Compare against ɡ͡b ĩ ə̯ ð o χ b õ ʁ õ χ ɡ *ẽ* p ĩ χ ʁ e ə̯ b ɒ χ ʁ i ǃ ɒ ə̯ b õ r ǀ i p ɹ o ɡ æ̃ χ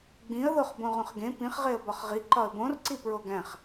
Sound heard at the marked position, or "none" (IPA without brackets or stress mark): ẽ